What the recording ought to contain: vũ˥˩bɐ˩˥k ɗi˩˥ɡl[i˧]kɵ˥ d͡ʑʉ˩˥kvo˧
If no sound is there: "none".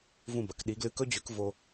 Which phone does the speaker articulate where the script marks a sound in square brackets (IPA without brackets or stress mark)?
ɨ˧